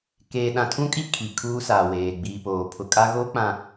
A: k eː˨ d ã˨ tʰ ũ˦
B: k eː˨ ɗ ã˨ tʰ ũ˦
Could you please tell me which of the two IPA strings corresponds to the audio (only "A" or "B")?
B